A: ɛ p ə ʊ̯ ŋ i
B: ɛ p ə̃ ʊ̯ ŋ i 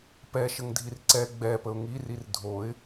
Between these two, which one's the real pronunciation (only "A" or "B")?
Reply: A